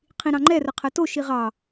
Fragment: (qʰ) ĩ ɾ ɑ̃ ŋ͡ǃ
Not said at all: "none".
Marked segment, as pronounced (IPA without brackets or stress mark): qʰ